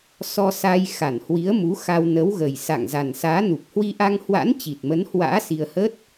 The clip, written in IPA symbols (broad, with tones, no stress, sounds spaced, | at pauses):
s ɔ˧ s aː˧ j x a˧˩ n h w i˨˦ ə̯ m u˨˦ x a˧ w n ə˨˦ w ɣ ə˨˩ j s a̰˧˨ ŋ z a˨˩ n s aː˨˦ n u˨˩ p̚ h w i˧ ʔ a˧ ŋ h w a̰˧˥ n t͡ɕ i˨˩ t̚ m ə˨˦ n h w a̰ː˧˥ s i˧ ə̯ h ə˦˥ t̚